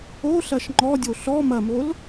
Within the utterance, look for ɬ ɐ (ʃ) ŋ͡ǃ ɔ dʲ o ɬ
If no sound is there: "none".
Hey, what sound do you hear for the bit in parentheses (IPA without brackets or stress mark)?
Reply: ʃ